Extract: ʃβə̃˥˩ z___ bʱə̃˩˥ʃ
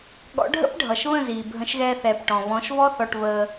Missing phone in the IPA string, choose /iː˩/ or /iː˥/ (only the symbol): iː˩